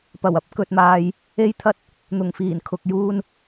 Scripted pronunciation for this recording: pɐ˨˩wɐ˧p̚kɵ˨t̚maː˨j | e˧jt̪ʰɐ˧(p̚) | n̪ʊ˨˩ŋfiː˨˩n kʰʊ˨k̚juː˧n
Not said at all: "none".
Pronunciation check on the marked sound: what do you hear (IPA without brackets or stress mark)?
t̚